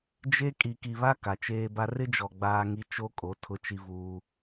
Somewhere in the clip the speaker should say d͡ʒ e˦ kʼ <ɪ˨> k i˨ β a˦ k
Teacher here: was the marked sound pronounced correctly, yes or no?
no